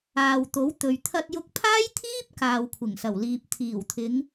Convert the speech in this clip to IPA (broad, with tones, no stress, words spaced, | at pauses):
aː˨wt̪o˨˥wt̪ɵ˨ɥ t̪ʰɐ˧t̚jʊ˧k̚pʰaː˥jt̪ʰiː˥p̚ kaː˨wkʷʰɪ˨˩ŋsɐ˨˩wliː˨p̚ t̪ʰiː˨˩wt̪ʰɪ˨˧ŋ